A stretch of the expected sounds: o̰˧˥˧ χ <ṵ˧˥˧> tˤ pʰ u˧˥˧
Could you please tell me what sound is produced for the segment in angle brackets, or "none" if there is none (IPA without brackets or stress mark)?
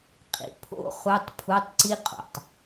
u˧˥˧